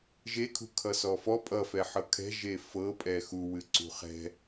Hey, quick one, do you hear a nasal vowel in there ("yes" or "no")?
no